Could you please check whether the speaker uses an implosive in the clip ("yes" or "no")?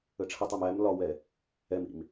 no